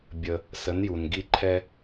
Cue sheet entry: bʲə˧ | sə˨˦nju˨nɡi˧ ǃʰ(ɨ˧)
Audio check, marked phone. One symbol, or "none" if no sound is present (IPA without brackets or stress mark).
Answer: ɛ˧